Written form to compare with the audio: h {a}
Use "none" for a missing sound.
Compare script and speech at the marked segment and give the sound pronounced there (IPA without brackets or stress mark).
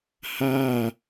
a